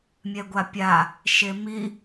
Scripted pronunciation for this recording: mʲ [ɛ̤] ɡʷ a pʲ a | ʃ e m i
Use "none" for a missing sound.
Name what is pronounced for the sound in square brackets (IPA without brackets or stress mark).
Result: ɛ